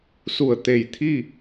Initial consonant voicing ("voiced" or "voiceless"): voiceless